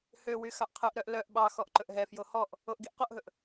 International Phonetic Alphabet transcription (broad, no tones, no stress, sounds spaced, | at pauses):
h ø w y x ɑ ʔ qʰ ɵ ʔ ɾ œ ʔ l œ ʔ ɓ ɑ x ɔ ʔ ǃ ɵ ʔ ɦ ɛ f j o h ɔ ʔ | o ʔ ɡ i ʔ q o ʔ ɦ ɵ ʔ